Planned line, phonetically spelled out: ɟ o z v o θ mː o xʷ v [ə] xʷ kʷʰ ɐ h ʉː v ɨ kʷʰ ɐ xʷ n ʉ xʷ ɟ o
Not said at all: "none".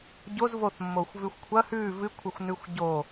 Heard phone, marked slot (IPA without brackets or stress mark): ʉ